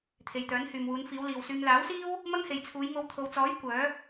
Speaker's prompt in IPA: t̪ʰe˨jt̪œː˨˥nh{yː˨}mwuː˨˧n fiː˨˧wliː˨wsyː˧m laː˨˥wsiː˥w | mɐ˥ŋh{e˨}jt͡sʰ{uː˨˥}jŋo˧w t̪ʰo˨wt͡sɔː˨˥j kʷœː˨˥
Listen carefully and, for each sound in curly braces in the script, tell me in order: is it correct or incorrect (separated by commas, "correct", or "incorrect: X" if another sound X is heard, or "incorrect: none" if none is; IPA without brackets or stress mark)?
correct, correct, incorrect: uː˨˧